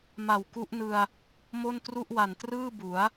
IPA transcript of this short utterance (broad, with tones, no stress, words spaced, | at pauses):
ma˨˩wku˦˥ʔnɯ˧a̯ | mo˥˩ntru˥˩ʔwa˨˩n trɯː˥˩bu˩˦a̯